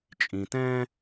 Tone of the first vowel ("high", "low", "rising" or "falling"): low